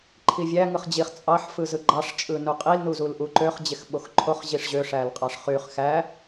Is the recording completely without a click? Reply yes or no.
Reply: no